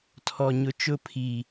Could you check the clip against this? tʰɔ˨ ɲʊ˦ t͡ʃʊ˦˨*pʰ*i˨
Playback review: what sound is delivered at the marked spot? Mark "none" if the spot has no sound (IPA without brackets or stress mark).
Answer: pʰ